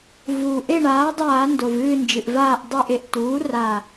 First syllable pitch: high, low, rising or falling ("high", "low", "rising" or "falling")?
low